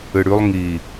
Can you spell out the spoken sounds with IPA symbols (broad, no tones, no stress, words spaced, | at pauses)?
ɨɽʉlˠ ŋi